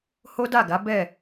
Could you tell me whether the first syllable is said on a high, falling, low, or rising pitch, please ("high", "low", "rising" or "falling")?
high